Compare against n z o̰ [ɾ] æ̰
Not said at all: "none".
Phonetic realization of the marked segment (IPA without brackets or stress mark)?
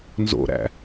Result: ɾ